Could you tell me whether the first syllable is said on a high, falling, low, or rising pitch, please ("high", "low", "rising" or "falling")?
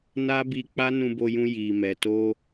high